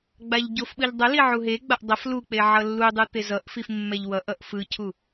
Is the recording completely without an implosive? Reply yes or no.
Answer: no